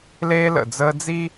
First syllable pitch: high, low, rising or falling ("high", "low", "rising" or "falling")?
high